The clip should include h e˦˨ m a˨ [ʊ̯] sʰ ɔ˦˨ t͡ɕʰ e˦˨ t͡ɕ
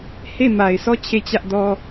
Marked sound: incorrect: ɪ̯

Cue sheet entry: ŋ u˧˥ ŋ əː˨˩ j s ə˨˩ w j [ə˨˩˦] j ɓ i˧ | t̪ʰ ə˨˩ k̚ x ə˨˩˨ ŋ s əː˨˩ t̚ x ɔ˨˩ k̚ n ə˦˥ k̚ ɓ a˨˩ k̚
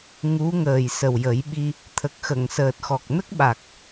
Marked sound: correct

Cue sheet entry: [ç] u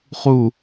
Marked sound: incorrect: χ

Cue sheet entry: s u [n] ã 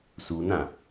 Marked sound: correct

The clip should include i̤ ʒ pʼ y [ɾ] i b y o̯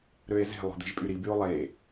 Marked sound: correct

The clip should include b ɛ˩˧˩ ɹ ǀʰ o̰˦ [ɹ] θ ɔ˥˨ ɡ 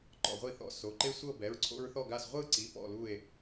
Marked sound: correct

